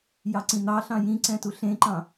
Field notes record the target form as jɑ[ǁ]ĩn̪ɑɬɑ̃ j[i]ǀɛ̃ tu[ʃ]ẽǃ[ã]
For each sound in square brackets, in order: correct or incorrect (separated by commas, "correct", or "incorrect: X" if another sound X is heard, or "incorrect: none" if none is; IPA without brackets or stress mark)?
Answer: incorrect: ǀ, incorrect: ĩ, incorrect: ɬ, incorrect: ɑ̃